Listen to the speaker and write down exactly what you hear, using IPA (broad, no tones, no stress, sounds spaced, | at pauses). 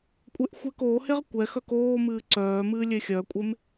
kʷʼ e ʔ xʷ ɛ k oː h e ʁ kʷ ɛ x œ k oː m ɨː ǀ œː m ɨː lʲ e xʲ œ kʷʼ e m